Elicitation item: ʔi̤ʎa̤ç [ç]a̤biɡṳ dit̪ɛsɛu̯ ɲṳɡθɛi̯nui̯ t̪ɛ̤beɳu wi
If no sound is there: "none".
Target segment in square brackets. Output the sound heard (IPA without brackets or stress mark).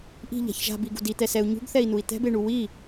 ʒ